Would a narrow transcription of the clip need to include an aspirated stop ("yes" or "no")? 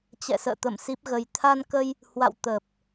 yes